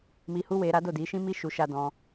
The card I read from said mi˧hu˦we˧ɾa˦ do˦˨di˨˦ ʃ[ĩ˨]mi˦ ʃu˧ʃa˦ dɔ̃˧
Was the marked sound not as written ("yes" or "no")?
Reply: yes